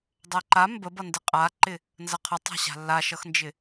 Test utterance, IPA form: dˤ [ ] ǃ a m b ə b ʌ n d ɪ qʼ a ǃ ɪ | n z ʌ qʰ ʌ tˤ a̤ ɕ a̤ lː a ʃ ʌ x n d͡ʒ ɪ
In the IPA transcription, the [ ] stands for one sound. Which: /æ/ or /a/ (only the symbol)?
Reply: æ